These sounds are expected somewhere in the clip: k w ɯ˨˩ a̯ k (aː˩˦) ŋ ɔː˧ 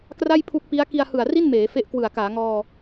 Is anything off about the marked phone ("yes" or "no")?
no